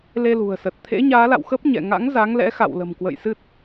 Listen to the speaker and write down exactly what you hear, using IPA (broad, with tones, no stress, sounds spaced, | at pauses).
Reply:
l e˧ l ṳ˨˩ ə̯ s ə˨˩ t̚ t̪ʰ ḛ˧˥ ɲ aː˨˦ l a̰˧˨ w x ə˦˥ p̚ ɲ ɛ̰˧˨ ŋ a̰˧˥ ŋ z a˨˦ ŋ l ɛ̰˧˥ x a̰˧˨ w l ə̤˨˩ m k w ə̰˧˨ j s ɨ˦˥ t̚